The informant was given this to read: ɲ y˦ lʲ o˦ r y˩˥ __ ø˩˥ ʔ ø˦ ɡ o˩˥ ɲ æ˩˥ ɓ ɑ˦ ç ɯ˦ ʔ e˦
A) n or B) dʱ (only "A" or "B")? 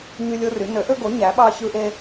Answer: A